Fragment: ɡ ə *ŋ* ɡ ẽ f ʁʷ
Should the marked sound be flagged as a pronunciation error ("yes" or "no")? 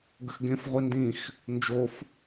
yes